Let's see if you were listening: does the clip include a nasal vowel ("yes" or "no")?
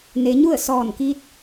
no